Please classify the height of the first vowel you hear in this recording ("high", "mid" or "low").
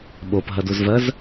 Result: mid